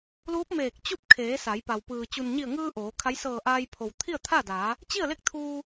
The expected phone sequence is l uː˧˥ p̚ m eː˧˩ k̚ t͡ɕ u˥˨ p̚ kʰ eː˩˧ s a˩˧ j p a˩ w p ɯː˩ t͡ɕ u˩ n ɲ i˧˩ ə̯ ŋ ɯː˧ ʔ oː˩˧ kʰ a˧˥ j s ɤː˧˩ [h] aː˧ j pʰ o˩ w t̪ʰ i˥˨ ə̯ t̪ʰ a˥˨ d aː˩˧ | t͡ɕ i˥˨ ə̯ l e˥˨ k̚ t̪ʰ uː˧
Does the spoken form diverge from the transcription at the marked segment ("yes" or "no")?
yes